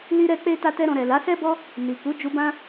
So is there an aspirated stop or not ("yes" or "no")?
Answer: no